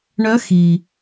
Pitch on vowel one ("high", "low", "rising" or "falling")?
rising